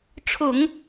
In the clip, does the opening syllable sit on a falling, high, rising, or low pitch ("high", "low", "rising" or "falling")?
low